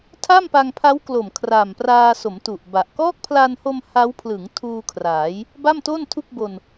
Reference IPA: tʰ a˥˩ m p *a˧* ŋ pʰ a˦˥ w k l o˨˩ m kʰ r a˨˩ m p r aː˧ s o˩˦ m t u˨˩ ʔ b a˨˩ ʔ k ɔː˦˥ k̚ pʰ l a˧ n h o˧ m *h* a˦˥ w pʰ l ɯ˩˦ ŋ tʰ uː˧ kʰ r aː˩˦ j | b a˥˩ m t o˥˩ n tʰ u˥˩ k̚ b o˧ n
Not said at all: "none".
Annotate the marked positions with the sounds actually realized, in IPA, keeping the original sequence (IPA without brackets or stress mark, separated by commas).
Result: a˧, h